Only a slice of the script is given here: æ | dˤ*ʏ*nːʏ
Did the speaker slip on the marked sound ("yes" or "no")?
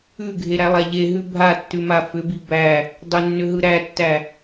no